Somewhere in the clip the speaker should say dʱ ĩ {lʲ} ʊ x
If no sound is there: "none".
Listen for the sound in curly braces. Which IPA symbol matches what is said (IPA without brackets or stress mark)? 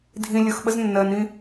lʲ